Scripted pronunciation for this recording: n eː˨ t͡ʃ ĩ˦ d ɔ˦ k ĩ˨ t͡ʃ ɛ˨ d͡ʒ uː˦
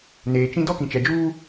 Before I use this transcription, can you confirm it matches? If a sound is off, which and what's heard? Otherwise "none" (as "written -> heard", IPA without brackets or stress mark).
none